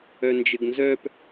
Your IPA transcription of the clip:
œ n d͡ʒ ɘ ɡ n z œ p

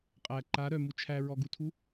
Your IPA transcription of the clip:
qʼ æ ǃ a ɾ œ m u t͡ʃʰ æ ɹ ɔ ɡ u tʰ u

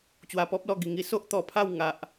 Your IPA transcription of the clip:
t͡ɕ w a˧ p ɔ˦ p̚ l ɔ˧ ɡ i˧ ŋ i˦ s o˦ ʔ t̪ ɔ˧ pʰ a˥˧ w ŋ a˦ ʔ

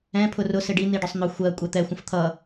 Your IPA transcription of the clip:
ɛ̃ pʰ ʊ r ʊ s ɪ ɖ i n̪ i ɖ ʊ sˤ n̪ ʊ xʷ ɜ kʷʼ ɛ t̪ ɛ xʷ ə̃ f t̪ʰ ʌ

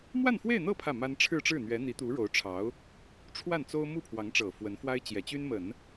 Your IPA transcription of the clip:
m w a˥˧ n f w e˥˧ ɪ̯ n̪ ɤ˥˧ pʰ ä˥˩ m a˥ n ʈ͡ʂʰ ɻ̩˥˧ ʈ͡ʂ ɻ̩˥˩ n̪ ɥ ɛ˧˥ n̪ i˧˥ t̪ u˧˥ ɻ o˧˥ ʊ̯ ʈ͡ʂʰ ɑ˧˥ ʊ̯ | ʈ͡ʂʰ w a˥˩ n t͡s o˥ ʊ̯ m u˥˩ pʰ w ɑ˧˥ ŋ ʈ͡ʂ ɤ˨˩ f w ə˧˥ n f w a˥ ɪ̯ t͡ɕ j ɛ˨˩ t͡ɕ y˥ n m ə˨˩˦ n

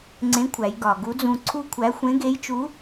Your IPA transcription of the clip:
ŋ͡ǀ ẽ˧˥ kʷʰ æ˩˧ j ɡ ɒ˩ ɡ u˧˥ d͡z ũ˧ ǀʰ u˥ kʷʰ æ˧˥ xʷ ẽ˧˥ ɡ e˧˥ j t͡ʃ u˧˥

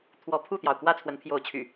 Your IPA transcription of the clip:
t̪ʰ w ɔ˨˦ pʰ u˥˨ t̪ j ɑ˩ ʊ̯ k w ä˥˨ t͡sʰ w ə˨˦ n pʰ j o˨˦ ʊ̯ t͡ɕʰ y̰˨˩

